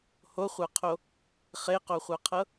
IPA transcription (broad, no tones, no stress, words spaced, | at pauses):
hoχʷaqʰo | χeqoχʷaqʰɤ